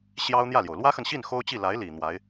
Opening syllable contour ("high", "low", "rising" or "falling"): high